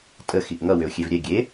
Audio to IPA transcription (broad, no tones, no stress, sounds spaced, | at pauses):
tʼ ə x i ʔ ŋ ʌ w ʏ ʊ̯ xʲ e v ɾʲ ɛ ɡʲ e